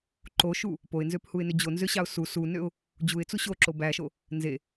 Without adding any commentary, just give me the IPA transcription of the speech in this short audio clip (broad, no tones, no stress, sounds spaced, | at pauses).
ǃ o ʃ u | p o ɪ̯ n z ø p h u ɪ̯ n ø d͡ʑ o n z ø ɕ ɑ ʊ̯ s u s u n ø ʊ̯ | d͡ʑ u ɪ̯ t͡s u ɕ o ǁ o b æ ʃ o | n z e